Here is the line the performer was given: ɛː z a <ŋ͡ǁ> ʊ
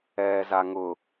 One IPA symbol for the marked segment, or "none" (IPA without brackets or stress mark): ŋ